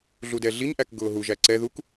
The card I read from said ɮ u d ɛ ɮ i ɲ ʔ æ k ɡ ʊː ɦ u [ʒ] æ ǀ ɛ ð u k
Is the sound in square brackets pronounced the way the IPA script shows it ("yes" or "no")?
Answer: yes